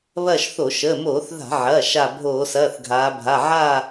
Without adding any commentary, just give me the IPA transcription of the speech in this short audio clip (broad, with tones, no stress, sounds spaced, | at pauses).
β ɐː˦˨ ʃ θ o˧˩˧ ʃ əː˩˧˩ m oː˧˩˧ θ ð a̤˧˩˧ ʕ ɐː˩˧˩ ʃ a˦˨ bʱ oː˧˩˧ s ɐː˩˧˩ θ ɡʱ aː˩˧ bʱ a˩˧˩ ʕ aː˦˨